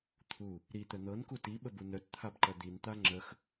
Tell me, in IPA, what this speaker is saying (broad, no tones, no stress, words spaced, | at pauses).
t̪ʰu | ɾit̪ə n̪ɤnku tiɓəbu nœtt̪ʰabǃɐ d̪int̪a ŋ͡ǁəx